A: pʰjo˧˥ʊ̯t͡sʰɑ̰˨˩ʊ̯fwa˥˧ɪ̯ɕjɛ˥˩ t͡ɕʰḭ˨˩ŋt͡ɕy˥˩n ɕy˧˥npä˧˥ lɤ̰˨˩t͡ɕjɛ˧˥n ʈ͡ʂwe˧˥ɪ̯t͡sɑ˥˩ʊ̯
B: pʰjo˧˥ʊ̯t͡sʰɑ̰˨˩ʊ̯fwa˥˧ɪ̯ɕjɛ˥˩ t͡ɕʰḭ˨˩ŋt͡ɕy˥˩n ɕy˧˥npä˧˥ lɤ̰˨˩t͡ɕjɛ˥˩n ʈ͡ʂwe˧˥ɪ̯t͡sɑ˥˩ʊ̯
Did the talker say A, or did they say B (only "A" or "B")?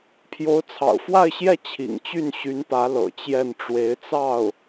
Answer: B